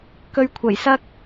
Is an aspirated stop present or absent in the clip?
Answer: present